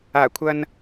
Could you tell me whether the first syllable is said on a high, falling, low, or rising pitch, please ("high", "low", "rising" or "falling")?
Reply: low